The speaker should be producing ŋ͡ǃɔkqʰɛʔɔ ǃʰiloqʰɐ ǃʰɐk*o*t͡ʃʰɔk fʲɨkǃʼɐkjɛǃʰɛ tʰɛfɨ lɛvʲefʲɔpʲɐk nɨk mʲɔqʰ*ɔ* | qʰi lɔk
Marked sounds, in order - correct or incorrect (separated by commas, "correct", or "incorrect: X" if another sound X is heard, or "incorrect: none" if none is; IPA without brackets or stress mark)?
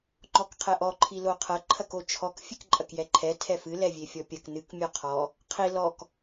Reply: correct, correct